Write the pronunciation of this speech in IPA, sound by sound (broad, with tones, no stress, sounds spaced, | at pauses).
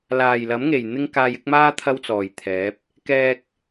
l aː˨˩ j l ɐ˨˥ m ŋ e˨˩ j n̪ ɪ˥ ŋ k aː˧ j ɪ˨˥ k̚ m aː˥ t̪ʰ ɐ˥ w t͡s ɔː˨˩ j t̪ʰ ɛː˨˥ p̚ | k ɛː˧ k̚